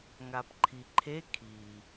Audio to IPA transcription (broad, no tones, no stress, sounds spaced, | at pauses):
ŋ a p ǃʰ i ǃʰ e kʰ i